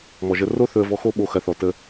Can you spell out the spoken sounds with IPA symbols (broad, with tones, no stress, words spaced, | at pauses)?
mɔ˨ʒə˧ ro˦ θɵ˧ə̯vɔ˧ xo˦ɓo˧ xɐ˧θɔ˨ tə˧